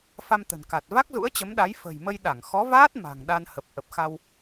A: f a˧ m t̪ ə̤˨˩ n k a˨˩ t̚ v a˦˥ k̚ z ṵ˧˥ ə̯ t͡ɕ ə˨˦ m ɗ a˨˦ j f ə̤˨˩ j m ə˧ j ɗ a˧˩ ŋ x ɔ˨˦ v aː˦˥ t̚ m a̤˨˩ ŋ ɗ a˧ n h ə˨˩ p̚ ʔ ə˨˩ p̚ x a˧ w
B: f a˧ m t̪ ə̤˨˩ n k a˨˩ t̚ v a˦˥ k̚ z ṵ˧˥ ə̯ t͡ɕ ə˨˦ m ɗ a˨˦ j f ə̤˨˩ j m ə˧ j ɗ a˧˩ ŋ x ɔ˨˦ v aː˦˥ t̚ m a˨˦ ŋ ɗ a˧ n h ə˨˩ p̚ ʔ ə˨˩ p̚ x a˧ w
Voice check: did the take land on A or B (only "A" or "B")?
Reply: A